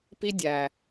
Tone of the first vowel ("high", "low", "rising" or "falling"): high